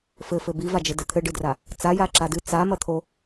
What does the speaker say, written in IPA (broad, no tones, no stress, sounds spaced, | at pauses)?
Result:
f ɘ f ɘ b i v a d͡ʒ ɘ d ɘ t̪ʰ ɘ ɖ ɨ d r a | t͡s a j a ǁ a d ɨ t͡s a m ɐ t̪ʰ o